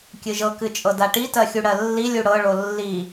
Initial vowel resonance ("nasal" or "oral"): oral